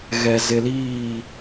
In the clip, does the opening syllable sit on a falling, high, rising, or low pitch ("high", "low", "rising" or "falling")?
low